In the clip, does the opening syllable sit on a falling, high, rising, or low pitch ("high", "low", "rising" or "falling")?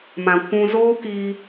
low